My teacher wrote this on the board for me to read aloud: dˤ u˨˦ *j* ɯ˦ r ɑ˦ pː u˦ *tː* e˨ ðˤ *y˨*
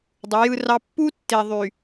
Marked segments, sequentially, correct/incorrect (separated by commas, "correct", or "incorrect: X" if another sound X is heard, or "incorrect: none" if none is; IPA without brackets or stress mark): correct, correct, correct